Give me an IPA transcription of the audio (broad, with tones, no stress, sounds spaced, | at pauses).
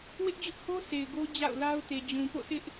w ɪ˦ ʔ d͡ʑ ʊ˦ ʔ h o˦ s e˨ ɪ̯ ɡ o˦ d͡ʑ a̰˦˨ ʊ̯ l a˦ ʊ̯ t e˨ d͡ʑ ũ˨ p o̰˦˨ sʰ ɪ˦ ʔ